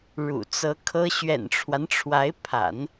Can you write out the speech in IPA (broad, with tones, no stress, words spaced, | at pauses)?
ɻṵ˨˩t͡sɤ˧˥ kʰɤ˥ ɕɥɛ̰˨˩nʈ͡ʂʰwa˦nʈ͡ʂʰwa˧˥ɪ̯pʰa̰˨˩˦n